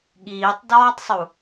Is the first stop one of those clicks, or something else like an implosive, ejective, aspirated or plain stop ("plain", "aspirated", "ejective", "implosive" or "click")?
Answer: implosive